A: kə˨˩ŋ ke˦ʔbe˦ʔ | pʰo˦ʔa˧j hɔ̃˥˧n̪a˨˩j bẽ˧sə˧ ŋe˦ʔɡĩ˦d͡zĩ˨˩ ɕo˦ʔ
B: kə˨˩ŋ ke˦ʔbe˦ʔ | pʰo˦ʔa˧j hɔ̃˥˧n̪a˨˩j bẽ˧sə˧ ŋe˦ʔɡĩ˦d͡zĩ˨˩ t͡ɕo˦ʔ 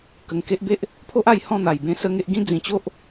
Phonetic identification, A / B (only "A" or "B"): B